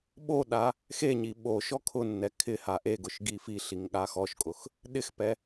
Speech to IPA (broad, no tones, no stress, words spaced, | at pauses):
ɓoɗa | xeɲi ɓo ʃɔkʰʊnːɛ kʰɪ haʔeɡʊʃ ɡifiɬiŋ ɠaxɔʃkʼʊx | ɗɪxpɛ